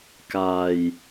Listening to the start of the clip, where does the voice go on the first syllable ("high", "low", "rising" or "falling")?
low